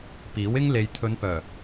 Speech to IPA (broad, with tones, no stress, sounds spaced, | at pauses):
p iː˨˥ w ɪ˥ ŋ l e˨ j t̪ʰ ɵ˨˧ n p œː˨˩